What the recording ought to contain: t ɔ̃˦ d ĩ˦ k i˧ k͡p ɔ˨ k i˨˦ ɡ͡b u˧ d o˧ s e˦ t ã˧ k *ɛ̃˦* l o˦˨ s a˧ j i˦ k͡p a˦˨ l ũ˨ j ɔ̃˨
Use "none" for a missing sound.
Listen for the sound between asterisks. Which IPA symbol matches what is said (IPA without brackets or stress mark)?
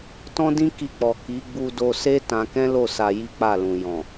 ɛ̃˦